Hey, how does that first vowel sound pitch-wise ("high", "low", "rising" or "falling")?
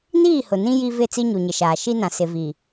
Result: falling